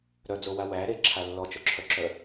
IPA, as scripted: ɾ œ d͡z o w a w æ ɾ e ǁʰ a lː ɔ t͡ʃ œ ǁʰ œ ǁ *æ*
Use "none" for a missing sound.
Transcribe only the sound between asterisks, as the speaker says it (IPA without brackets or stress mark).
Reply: œ